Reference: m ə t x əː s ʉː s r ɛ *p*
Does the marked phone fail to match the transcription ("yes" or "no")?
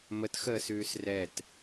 yes